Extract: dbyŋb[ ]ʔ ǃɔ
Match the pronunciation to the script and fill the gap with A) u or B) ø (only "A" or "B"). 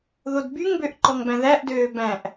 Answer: B